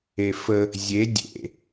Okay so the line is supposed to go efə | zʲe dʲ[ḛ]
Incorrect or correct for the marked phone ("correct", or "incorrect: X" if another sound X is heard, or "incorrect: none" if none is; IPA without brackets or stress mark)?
correct